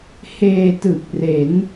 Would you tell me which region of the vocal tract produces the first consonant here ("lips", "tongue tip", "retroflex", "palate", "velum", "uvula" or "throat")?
throat